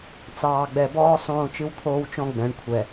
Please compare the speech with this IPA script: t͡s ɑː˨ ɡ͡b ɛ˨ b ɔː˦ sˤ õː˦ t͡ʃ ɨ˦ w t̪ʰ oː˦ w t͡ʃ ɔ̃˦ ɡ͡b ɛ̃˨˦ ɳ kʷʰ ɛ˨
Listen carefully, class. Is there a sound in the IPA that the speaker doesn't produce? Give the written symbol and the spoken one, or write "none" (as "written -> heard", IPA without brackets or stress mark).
none